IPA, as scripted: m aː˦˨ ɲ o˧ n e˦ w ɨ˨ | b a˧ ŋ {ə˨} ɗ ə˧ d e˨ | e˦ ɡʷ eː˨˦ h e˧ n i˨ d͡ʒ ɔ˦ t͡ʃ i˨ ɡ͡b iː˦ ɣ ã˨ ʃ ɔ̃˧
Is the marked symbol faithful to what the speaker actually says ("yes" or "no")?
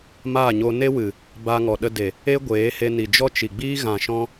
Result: no